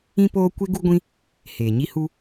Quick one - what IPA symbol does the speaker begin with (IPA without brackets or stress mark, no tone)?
ĩ